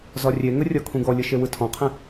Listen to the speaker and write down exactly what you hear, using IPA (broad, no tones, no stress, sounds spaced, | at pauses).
z ɒ rʲ e ŋ ə rʲ ɒ kʰ ũ ɡ ɔ lʲ ə ʃ e w ɯ tʰ ɔ̃ qʰ ẽ